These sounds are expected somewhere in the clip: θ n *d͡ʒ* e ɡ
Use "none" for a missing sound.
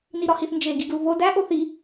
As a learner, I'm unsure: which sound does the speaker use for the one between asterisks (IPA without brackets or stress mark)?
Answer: d͡ʒ